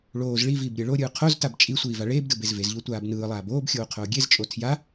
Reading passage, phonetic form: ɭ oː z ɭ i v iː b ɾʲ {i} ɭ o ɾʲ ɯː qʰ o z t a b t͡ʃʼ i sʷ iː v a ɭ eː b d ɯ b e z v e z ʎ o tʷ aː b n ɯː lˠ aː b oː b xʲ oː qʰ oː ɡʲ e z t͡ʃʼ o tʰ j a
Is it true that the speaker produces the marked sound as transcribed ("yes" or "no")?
no